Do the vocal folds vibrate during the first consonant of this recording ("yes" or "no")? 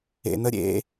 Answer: yes